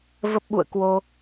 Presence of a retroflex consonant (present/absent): absent